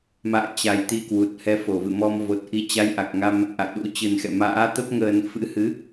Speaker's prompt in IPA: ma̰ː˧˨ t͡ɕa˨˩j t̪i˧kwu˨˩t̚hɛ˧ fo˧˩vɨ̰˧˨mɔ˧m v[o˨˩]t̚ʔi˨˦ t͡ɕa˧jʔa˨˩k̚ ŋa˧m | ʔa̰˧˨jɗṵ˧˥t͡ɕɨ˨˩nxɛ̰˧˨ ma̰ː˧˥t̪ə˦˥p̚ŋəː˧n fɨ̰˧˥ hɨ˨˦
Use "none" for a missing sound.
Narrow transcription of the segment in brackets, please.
o˨˩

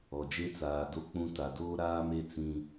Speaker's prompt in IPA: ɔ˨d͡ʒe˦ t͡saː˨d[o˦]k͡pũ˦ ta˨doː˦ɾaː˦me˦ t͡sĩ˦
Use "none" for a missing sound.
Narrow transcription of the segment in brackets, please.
o˦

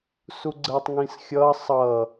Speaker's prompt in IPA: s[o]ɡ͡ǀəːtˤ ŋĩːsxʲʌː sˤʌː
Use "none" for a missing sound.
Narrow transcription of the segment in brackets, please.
u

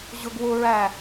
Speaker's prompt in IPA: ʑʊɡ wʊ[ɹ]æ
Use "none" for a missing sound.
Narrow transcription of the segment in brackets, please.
ɹ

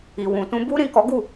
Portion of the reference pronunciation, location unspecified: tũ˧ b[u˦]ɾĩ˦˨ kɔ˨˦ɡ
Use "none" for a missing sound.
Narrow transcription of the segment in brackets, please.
u˦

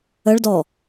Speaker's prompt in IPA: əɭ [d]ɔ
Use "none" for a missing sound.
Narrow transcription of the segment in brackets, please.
d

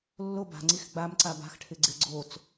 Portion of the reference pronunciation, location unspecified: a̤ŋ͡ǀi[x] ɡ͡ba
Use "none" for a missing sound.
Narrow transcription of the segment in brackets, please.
x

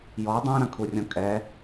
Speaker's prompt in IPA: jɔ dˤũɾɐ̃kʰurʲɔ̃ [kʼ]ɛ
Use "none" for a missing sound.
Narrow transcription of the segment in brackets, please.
kʼ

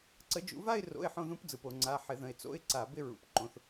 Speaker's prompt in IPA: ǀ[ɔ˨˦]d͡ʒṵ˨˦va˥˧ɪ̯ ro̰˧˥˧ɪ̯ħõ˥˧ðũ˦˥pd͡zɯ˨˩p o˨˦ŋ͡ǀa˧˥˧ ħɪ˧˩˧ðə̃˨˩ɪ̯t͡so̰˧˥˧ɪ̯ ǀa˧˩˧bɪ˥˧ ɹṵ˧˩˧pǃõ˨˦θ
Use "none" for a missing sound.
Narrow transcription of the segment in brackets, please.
ə˨˦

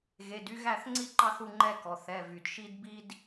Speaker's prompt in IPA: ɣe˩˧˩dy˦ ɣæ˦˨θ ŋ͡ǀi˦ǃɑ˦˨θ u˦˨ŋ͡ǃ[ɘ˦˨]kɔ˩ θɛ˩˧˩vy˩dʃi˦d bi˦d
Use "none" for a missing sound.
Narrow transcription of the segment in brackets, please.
ɛ˦˨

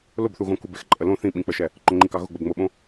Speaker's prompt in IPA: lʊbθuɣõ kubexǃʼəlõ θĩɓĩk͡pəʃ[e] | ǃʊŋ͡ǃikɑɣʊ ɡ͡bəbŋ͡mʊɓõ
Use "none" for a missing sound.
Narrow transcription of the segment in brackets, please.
ɛ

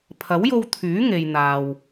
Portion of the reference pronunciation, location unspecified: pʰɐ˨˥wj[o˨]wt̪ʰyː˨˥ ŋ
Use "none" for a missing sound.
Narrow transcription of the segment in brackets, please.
o˧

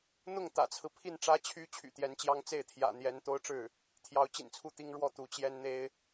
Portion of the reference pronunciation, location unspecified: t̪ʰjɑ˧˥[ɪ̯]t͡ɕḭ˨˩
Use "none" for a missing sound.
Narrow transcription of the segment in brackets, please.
ʊ̯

